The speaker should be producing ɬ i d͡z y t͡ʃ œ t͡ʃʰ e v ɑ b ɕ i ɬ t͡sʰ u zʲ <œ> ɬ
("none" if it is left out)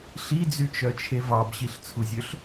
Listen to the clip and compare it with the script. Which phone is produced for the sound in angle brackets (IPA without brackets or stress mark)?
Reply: ø